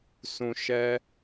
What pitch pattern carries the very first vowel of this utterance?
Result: low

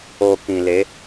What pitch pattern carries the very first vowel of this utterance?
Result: low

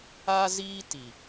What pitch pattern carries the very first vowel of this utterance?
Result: high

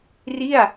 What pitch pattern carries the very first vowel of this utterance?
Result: falling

